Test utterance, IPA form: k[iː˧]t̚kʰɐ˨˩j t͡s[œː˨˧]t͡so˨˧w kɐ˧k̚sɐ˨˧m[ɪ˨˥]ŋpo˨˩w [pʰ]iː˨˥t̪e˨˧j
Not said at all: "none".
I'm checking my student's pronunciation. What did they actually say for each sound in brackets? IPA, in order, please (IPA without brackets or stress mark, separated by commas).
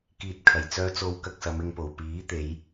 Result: iː˧, œː˨˧, ɪ˧, p